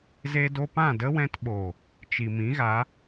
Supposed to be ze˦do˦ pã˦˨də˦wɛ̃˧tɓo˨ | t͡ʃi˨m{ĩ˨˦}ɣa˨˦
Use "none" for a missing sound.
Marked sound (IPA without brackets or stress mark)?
ĩ˨˦